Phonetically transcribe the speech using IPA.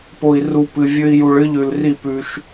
p o˨ i̯ r u˨ p ɨ˨ vʲ ɵ˧ i̯ j u˨ ɭ ɨ˧ ʎ ʉ˨ l r i˦˨ p ʉ˧ ʃ

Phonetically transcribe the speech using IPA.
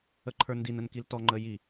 ə ǃʰ ə˞ n d i n ə n k i l t ɔ ŋ͡ǃ əː j i

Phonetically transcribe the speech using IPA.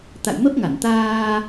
t̪ a̰˧˨ j m ə˦˥ p̚ ŋ a˧˩ n t̪ aː˧

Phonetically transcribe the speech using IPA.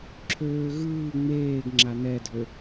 ǁʰ øː ɣ ɯː ŋ͡m eː ɡ ŋ͡ǁ a n ɛ dʱ ø

